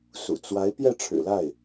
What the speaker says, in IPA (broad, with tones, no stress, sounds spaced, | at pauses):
s ṵ˨˩ t͡s w a˧˥ ɪ̯ p j ɛ˥˩ ʈ͡ʂʰ ɻ̩˨˩ l a˥˩ ɪ̯